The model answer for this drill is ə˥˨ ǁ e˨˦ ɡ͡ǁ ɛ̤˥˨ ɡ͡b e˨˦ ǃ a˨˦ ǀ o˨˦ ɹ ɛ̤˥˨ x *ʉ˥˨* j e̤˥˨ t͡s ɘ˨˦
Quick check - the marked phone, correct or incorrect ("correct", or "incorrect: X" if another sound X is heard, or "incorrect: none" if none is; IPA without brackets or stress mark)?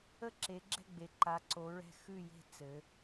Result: correct